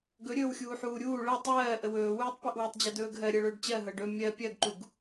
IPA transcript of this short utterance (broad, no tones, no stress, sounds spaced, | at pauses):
ɡ ɵ ɾʲ ɵː w xʲ uː ħ uː ɾʲ uː ɭ ɤ tˤ ɜː ʔ ə w ɵː w uː tˤ p e ʔ w ɵ tˤ d͡ʑ ɜ d ɵː ɡ ɦ ɜ ɾʲ ɜ ɭ ɵː ɖ t͡ɕ ɜ ɦ ɤ ɖ ɵ mʲ ɜ pʲ ɜ ɡ ǃ u ɡ